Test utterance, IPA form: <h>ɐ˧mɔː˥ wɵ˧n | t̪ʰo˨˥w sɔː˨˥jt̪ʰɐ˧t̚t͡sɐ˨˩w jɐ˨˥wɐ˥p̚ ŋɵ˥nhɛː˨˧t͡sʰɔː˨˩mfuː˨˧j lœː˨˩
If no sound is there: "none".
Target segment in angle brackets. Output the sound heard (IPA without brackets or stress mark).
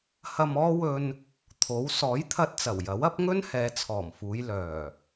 h